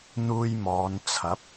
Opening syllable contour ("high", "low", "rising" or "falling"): high